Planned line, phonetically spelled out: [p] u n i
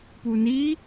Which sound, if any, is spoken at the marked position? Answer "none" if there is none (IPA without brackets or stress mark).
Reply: p